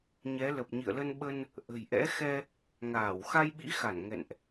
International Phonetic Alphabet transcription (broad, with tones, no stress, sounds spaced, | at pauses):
ɲ ɛ˨˦ l ə˨˩ p̚ ɲ ḭ˧˨ ə̯ l ə˧ n ɓ ə˧ n | ʔ ə̤˨˩ j ʔ ɛ̰˧˥ x ɛ˧ | ŋ aː˧˩ w x a˧ j ɓ ḭ˧˥ x a˧˩ n ŋ ɛ̰˧˨ n ʔ